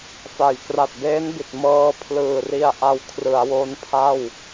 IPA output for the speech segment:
fa˨˩j kra˨˩t̚beː˦˥nbi˨˩t̚ mɤː˧pʰlɯː˨˩ ri˧a̯ʔa˧w kʰrɯ˩˦a̯wo˦˥npʰa˥˩w

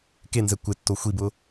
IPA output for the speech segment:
kenzɛ kʷɪtːo xʷibʊ

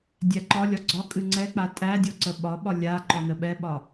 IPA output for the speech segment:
dʲæǃɒlʲɒ ɡ͡ǀɒkʼɨ ŋ͡ǀɛk͡pa tʼæ dʲɔǀəɓɒɓɒ lʲa ǃɔnəɓɛɓɒ

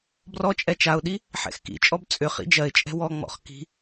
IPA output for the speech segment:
brɔt͡ʃʼɛ t͡ʃaʊ̯ɗi | ħɛ̰xkḭt͡ʃʼɔb t͡sʼʏ χḭd͡ʒɜɪ̯t͡ʃʼɛ̤ wɔŋ͡mɔ̰χ ki̤

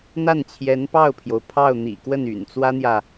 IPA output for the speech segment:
n̪a˥˩nt͡ɕʰjɛ˧˥npɑ˥˩ʊ̯pʰjo˩ʊ̯ pʰɑ˥˩ʊ̯ n̪ḭ˨˩kwə˥˩n y̰˨˩nt͡swä˥n̪jä˨

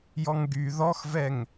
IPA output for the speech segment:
jɔŋɡy ðɔxvɛŋ

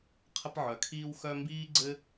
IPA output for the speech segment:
qʰə˦pʕœ˩kʰiː˦w xœ˦mbiː˥ ɡ͡ǀɘ˥

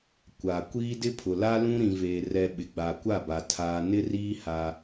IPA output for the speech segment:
kʷa˨kʷiː˦ dɪ˦pʰʊ˨la˦ lũ˦ ɾĩ˨veː˨rɛ˨ ɓɪ˨ɡ͡ba˨kʷa˦˨ba˨ tʰaː˨nɪ˦riː˦ ha˦

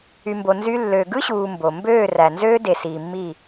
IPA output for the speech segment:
y˨mbo˨ nzy˦ lːøː˨ɡɯ˦ɕuː˨ mbo˨ mbøː˦˨ræ˨nzøː˦ de˨siː˨mːi˦˨

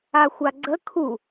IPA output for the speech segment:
axʷaɡ͡ǀə kʰu

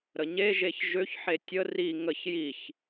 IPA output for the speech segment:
ɾəɲeʒeç ʒøçħe tʲə ri ŋəç jiç

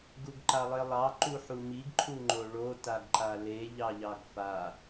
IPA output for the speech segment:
ɡuɡǃalˠelˠɑ ǃuħumiɡ ǃʰuŋ͡ǃoɭo taɡǃale ʎɑʎɑɡfa

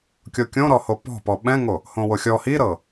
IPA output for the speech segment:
kʲokʲõɾɔho pɔ̤pɔ ɓɛ̃ŋo | hõwoxʲɔ hiɾɤ

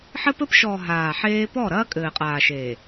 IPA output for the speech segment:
ħɘ˦pɘ˦pʃɔː˨ ɦaː˨ħeː˦ pɔ˦˨ɾɐː˦ kʼɘː˨qʼaː˨ʃeː˨

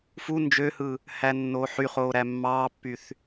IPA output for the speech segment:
fu nd͡ʒøhɯ | hænːoːħyχoː ɾæmːɑːpːyθ

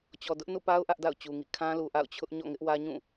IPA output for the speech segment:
t͡ɕɔ˨dʊ˦ʔ nṵ˦˨pa˦ʊ̯ ʔä˦ʔda̰˦˨ʊ̯t͡ɕu˨ŋḭ˦˨ kʰã˦ lu˨ ʔa̰˦˨ʊ̯ t͡ɕʰʊ˦ʔ ɲɔ̰˦˨ŋɪ˦ʔwä˦ ɲũ˦˨

